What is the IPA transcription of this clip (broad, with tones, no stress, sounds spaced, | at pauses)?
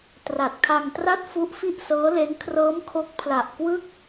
t r a˨˩ t̚ kʰ a˧ ŋ t r a˦˥ t̚ f u˦˥ ʔ f i˥˩ ʔ s ɤː˦˥ l e˦˥ n kʰ r ɤː˦˥ m kʰ o˦˥ k̚ pʰ l a˨˩ ʔ k w ɯ˥˩ k̚